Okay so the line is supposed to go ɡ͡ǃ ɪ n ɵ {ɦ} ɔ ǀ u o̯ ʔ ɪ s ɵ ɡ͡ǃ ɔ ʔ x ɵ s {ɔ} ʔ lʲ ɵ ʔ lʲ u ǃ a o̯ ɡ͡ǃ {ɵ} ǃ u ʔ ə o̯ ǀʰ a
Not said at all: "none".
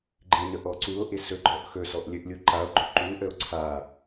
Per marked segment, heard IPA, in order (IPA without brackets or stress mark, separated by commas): ʔ, ɔ, ɵ